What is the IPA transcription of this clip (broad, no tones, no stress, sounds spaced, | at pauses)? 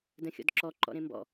d ə̃ xʲ ɔ̰ d ǁ ɔ ǃ ɔ̰ ɾ ẽ m b ɔ̰